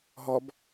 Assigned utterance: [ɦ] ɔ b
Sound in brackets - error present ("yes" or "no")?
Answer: no